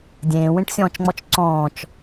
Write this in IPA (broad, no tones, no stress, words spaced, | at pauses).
dʲẽːwẽʈsʲɔ̃ːt͡ʃŋ͡mɔt͡ʃ ǀɔ̃ːt͡ʃ